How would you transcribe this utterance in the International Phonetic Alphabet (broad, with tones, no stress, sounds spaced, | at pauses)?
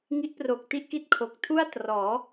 ŋ i˦˥ ʔ p r o˨˩ k̚ t i˥˩ ʔ k i˥˩ t̚ kʰ o˨˩ k̚ tʰ u˥˩ a̯ t r ɔː˩˦